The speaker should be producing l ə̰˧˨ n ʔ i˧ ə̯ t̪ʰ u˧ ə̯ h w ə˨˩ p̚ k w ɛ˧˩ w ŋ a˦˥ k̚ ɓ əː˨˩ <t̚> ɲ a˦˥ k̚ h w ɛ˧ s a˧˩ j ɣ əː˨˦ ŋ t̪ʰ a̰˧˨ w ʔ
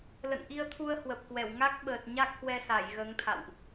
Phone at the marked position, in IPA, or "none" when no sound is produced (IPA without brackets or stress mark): t̚